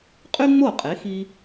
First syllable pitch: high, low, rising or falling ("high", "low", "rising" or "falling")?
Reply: high